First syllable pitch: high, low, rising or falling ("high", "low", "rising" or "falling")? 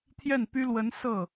falling